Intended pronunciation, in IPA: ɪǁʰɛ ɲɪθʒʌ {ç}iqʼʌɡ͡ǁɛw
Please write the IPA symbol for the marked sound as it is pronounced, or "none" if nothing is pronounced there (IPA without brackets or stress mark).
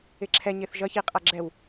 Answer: ç